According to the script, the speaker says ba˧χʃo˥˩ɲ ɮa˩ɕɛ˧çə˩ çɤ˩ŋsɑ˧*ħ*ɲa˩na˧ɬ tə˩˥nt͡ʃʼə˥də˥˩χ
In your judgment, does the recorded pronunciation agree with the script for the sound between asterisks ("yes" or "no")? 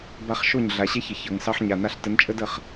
yes